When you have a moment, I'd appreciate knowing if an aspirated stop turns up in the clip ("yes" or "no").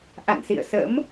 no